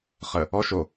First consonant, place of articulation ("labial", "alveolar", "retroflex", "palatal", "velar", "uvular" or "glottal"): uvular